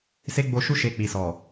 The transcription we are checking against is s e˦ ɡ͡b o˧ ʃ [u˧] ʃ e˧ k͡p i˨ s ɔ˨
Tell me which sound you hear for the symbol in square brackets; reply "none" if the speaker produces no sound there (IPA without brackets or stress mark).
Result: u˦